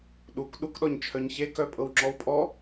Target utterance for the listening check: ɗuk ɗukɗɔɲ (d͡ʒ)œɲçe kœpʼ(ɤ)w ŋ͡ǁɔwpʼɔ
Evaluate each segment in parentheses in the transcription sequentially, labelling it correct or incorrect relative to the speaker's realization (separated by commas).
incorrect, correct